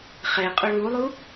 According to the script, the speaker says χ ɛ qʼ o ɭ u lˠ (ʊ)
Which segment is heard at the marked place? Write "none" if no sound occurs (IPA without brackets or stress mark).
u